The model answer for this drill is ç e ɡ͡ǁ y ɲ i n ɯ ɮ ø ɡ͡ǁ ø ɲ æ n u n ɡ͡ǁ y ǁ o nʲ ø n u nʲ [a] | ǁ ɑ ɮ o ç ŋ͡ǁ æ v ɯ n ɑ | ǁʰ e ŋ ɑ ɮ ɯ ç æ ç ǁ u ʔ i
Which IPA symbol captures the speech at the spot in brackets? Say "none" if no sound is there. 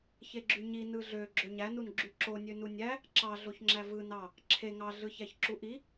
æ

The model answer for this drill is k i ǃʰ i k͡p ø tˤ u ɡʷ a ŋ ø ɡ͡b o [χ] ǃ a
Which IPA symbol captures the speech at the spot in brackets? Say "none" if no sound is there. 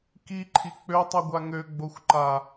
xʷ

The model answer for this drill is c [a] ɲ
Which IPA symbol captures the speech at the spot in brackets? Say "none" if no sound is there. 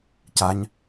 a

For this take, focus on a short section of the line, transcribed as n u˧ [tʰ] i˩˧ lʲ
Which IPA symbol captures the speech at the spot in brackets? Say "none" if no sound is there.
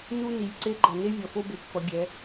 n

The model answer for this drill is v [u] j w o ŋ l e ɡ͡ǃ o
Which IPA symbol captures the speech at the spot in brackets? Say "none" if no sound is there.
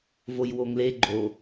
o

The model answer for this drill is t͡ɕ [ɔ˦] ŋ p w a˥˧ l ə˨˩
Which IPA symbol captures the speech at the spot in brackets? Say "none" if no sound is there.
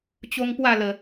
o˦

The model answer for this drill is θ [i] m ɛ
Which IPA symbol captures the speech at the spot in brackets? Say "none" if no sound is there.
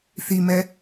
i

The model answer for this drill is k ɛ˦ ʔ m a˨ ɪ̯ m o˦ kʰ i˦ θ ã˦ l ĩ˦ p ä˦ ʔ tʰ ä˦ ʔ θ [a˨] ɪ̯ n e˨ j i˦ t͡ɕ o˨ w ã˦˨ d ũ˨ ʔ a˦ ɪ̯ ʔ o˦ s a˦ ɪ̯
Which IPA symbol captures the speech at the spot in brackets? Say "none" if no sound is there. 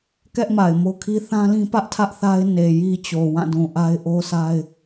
a˦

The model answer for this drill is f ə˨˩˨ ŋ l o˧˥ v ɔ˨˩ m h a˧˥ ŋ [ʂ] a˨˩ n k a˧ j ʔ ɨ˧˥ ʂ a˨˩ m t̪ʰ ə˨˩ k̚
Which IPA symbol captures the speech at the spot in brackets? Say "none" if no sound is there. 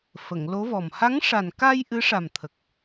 ʂ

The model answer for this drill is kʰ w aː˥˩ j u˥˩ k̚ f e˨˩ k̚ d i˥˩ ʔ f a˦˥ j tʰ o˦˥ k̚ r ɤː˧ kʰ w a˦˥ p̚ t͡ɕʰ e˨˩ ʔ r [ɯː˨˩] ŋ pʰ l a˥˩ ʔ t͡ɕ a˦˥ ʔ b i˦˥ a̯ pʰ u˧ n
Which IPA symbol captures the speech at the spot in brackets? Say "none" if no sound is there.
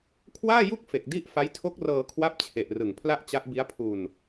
ɯ˨˩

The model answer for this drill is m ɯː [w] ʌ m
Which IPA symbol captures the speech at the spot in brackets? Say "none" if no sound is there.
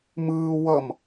w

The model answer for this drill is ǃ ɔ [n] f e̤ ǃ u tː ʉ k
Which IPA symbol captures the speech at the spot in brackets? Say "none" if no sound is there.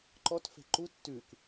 t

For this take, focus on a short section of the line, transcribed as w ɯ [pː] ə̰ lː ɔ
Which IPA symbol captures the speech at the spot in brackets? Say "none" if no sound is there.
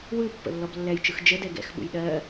pː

